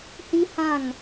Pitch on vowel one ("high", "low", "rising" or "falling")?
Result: high